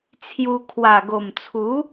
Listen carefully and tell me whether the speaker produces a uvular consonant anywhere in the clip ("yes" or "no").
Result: no